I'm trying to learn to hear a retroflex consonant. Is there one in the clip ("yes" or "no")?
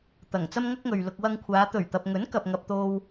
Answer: no